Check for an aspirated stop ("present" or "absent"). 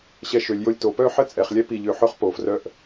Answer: absent